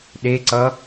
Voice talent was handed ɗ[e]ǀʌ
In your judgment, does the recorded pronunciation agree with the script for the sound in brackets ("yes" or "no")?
yes